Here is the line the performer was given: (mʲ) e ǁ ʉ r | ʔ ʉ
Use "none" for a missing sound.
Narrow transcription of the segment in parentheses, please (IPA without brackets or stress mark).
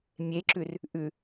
mʲ